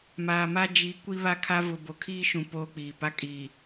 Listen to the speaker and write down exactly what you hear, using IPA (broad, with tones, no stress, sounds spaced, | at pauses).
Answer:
m aː˨ m a˦ d͡ʒ i˨˦ kʷ i˦ β a˦ kʰ a˦ v ʊ˨ b o˨ kʰ iː˦ ʃ ũ˨ p oː˦ k͡p iː˨ p a˦ kʼ iː˨